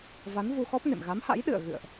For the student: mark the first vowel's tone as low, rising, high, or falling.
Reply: rising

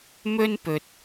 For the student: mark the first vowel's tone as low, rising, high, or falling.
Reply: high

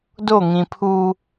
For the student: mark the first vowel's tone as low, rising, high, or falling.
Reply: falling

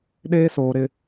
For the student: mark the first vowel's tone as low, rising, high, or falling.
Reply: high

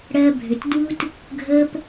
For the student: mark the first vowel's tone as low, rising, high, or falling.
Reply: high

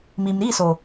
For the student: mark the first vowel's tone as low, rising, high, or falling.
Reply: low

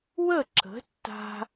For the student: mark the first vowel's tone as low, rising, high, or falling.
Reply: falling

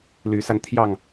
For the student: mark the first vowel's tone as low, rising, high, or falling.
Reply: rising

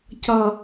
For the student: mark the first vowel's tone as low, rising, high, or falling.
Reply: low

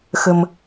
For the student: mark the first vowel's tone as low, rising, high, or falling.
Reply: low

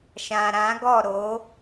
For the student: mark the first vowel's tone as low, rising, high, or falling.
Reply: low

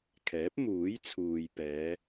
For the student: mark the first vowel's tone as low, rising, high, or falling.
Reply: rising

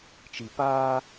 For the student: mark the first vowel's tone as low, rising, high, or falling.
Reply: low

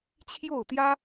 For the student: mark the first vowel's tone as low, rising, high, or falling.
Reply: falling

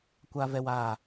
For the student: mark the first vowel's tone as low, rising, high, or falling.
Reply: high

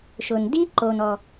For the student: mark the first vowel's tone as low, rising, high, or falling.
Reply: low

